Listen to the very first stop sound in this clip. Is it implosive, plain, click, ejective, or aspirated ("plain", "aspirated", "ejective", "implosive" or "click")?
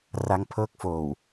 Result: aspirated